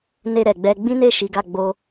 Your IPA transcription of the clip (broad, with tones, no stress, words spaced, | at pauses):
ne˧ɾɛ˨ɡ͡bɛ˧ ɡ͡bĩ˦ne˦˨ ʃi˨˦ɡa˦˨ ɡ͡bo˧